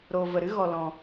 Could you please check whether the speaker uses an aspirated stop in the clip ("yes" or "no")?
no